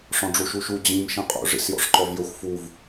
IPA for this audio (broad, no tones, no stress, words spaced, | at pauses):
ʂɔ̃ɖ͡ʐuʃuʃu d͡ʑĩm ʃĩqʼṵ ʐḭsjɔ̰ʂǃɔvjɵxʷ fuv